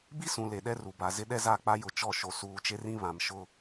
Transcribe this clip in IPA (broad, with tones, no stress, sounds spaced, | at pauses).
b i˦ s ũ˨ l e˨ ɗ ɛ˦ r u˨ b a˨ z ɪ˦ ɗ ɛ˦ z a˦˨ k͡p a˦ j ʊ˨ t͡ʃ ɔ˦˨ ʃ o˨ s uː˨ t͡ʃ e˦ r ĩ˦ β ã˨ m ʃ ʊ˦